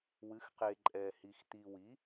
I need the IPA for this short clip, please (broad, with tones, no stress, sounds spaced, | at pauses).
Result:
w ɨ˩˥ x q e˨ ǃʼ ɛ˨ h i˨ x t̪ i˨ w i˩˥